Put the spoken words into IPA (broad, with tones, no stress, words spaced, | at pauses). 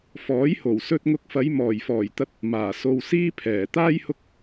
fɔː˨˥jho˨˩w sɵ˧t̚ŋʊ˧k̚fɐ˨˧j mɔː˨˩jfɔː˨˩jt̪ɐ˧t̚ | maː˨˩so˧w siː˥pʰɛː˨˩ t̪aː˥j hʊ˥k̚